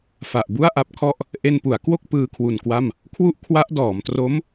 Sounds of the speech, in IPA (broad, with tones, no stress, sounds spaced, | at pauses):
f a˨˩ ʔ b u˥˩ a̯ ʔ a˦˥ p̚ kʰ ɔ˥˩ ʔ | ʔ e˧ n p u˩˦ a̯ k w o˥˩ k̚ p ɯː˧ kʰ w u˨˩ n k w a˥˩ m | kʰ w u˥˩ ʔ kʰ w a˦˥ ʔ d ɔː˩˦ m t r o˦˥ m